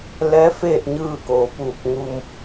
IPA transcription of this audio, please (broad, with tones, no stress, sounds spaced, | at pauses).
l ɛː˧˥ f eː˥˨ t̚ ɲ ɯː˥˨ k oː˩˧ p uː˧˩ k̚ ŋ uː˧ m